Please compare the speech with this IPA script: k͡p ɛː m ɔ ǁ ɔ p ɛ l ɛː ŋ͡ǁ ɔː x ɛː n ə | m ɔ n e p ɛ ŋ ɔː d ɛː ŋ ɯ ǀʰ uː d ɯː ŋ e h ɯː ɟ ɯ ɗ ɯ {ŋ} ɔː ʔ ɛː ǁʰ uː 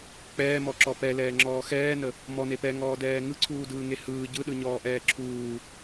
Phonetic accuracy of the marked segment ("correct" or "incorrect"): incorrect